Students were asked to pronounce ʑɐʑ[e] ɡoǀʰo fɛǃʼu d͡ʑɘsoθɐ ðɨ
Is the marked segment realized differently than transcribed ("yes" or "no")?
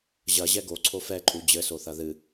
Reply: yes